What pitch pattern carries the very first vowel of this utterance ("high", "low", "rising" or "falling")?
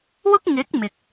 high